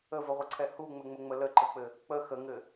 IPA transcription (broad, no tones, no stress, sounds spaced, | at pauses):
ə v ə ʁʷ ə ǀʰ ɛ h u ŋ͡m ɘ ŋ͡m ə ŋ͡m ə l ə ǃ ə k͡p ɘ | k͡p ə x ə ŋ ɘ